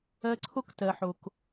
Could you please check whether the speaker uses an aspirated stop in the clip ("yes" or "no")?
yes